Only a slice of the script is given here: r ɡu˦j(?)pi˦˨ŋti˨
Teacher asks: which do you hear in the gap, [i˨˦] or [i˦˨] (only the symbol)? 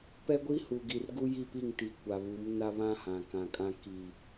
i˦˨